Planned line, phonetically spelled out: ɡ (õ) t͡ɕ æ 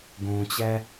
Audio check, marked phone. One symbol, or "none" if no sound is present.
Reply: õ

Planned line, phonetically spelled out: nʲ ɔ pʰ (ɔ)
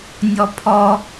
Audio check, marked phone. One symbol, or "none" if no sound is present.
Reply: ɔ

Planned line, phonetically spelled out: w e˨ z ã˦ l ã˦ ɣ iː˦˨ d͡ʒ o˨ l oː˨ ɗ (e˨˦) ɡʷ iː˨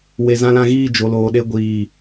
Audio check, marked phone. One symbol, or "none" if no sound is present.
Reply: e˦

